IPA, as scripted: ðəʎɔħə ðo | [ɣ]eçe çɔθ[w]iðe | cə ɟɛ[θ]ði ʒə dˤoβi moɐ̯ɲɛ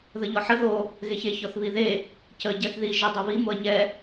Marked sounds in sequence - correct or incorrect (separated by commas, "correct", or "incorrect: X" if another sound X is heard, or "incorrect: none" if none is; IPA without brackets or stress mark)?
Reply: correct, incorrect: β, correct